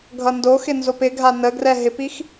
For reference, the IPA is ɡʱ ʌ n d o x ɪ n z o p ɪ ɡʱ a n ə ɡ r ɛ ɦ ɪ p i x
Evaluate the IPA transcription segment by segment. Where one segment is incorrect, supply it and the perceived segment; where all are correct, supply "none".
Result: none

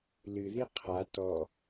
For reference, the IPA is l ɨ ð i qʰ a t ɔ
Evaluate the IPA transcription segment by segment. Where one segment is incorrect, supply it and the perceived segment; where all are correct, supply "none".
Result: none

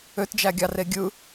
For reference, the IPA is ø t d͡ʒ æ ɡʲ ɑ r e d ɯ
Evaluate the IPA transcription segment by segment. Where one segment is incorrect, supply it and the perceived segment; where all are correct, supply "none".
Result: d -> ɡʲ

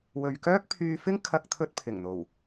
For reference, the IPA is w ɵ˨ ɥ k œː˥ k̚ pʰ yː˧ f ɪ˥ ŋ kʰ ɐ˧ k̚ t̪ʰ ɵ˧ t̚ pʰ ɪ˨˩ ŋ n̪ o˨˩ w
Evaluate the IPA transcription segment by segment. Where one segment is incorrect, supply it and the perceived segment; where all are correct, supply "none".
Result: none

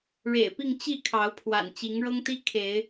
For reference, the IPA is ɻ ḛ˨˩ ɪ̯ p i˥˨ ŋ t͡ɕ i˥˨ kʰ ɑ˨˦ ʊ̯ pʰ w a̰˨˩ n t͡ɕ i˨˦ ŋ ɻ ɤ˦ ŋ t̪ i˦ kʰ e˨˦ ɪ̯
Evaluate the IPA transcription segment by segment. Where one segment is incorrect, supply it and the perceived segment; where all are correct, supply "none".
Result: none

